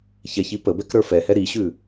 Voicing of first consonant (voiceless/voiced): voiceless